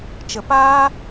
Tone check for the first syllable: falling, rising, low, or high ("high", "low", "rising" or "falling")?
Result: low